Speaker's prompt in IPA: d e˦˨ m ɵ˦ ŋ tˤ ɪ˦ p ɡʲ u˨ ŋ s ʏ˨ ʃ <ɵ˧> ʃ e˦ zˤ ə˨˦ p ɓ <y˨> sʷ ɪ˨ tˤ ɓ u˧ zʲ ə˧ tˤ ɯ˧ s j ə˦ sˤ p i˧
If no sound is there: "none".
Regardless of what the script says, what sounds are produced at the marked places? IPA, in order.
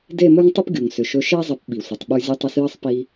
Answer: ɵ˧, i˨

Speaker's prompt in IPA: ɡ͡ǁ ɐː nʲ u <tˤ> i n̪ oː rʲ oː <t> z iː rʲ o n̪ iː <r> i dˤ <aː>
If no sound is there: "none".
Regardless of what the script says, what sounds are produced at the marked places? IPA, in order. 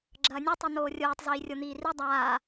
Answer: tˤ, tˤ, r, aː

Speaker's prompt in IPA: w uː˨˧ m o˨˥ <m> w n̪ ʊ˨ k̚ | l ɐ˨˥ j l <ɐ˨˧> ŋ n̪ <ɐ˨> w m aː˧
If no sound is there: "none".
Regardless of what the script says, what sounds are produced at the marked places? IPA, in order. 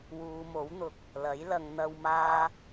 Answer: none, ɐ˨˧, ɐ˨

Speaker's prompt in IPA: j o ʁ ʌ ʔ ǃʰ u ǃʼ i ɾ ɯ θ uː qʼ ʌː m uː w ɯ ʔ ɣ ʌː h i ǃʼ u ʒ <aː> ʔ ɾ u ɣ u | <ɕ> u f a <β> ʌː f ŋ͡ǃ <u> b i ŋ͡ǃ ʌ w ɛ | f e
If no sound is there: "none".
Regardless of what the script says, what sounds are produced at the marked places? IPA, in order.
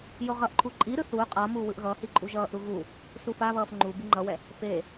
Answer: ʌː, s, β, u

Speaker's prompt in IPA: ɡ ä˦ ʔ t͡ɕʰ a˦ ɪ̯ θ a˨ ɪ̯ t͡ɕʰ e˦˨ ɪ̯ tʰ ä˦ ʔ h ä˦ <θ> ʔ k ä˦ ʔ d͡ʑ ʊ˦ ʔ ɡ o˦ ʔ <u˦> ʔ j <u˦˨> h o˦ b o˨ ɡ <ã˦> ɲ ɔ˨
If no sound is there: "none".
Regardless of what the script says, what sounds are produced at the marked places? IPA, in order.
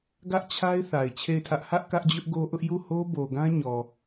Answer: none, ʊ˦, u˦˨, ã˦

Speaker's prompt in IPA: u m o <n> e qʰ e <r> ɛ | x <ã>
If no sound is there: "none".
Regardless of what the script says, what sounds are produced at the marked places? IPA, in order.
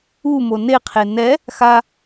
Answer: n, n, a

